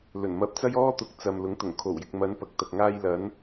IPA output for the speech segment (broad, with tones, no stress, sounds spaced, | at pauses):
l ɵ˨˩ n m ɐ˨˥ p̚ t͡s ɐ˥ j ɔː˥ t̪ ʊ˨˥ k̚ t͡s ɐ˨ m l ʊ˨˥ ŋ t̪ ʊ˨˩ ŋ kʰ o˨˩ w j ɪ˨ k̚ m ɐ˨˧ n p ɐ˨˥ k̚ t̪ ɐ˨ k̚ ŋ aː˧ j l ɐ˨˧ n